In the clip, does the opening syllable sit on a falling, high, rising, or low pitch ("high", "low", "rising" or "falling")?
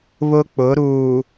high